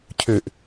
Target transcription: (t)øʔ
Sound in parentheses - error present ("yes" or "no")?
yes